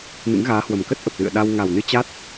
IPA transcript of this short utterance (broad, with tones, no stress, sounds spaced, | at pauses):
n ɨ̰˧˥ ŋ ɣ aː˨˦ h w ə˨˩ m k ə˦˥ t̚ ʔ ə˨˩ p̚ l ɨ̰˧˨ ə̯ ɗ a˧ w ŋ a˨˩ w n ɨ˧ t͡ɕ a˦˥ t̚